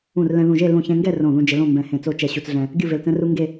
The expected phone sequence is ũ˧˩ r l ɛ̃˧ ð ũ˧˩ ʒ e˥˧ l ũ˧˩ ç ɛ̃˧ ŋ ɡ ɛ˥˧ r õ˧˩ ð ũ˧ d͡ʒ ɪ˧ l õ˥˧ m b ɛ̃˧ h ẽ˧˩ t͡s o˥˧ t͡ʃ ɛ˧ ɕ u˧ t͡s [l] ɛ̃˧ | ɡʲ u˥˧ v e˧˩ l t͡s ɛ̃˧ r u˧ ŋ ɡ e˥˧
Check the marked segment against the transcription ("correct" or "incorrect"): incorrect